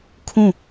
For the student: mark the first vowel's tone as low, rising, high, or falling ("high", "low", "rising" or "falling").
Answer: falling